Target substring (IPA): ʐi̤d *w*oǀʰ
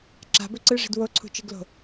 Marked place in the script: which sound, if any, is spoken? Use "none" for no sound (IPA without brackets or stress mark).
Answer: w